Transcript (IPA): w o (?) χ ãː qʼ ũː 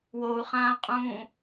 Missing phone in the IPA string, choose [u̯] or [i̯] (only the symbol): u̯